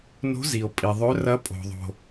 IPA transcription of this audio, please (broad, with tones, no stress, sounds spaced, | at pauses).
n o̤˧˥ z i˨ o̯ pʼ i˨ ðˤ ɵ˧˥ r ɐ˧˥ pʼ o̤˨ ðˤ o̤˨